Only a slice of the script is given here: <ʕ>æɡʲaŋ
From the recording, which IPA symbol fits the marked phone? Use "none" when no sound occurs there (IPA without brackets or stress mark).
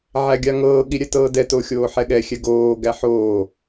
ʕ